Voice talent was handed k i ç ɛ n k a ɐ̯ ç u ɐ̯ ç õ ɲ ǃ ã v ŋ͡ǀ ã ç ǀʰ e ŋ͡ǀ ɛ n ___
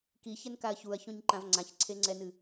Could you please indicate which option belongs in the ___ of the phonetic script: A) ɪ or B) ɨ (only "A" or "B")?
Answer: B